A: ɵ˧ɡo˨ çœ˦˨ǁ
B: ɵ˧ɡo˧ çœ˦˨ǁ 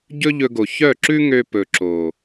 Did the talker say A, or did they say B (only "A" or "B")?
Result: A